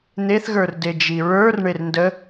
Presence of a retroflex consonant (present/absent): present